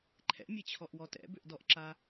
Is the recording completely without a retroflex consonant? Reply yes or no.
yes